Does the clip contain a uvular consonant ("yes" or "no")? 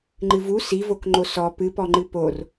no